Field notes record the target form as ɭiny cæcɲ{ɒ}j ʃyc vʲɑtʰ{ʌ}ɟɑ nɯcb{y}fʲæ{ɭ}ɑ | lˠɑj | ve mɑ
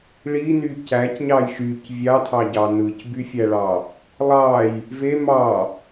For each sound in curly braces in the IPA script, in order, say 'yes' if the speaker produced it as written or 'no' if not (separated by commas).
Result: no, no, yes, yes